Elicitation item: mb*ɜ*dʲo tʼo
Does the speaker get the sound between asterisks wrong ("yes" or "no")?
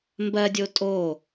no